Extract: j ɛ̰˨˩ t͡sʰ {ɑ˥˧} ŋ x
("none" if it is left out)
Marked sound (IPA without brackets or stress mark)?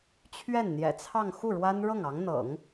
ɑ˥˧